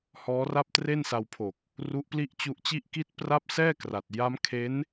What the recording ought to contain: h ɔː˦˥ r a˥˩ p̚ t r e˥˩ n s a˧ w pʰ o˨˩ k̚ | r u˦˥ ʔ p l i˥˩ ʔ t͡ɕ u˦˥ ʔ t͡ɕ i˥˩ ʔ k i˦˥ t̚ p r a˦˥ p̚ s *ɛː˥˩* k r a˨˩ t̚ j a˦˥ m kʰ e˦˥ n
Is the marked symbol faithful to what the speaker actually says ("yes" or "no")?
yes